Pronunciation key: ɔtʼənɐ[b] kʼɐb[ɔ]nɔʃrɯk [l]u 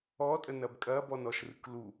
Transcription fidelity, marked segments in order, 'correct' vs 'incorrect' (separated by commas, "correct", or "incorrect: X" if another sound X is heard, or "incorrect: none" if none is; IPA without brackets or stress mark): correct, correct, correct